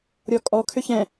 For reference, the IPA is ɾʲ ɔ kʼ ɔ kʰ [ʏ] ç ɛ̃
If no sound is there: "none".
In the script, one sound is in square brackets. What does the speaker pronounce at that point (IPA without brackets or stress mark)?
ʏ